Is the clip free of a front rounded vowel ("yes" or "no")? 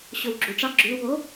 yes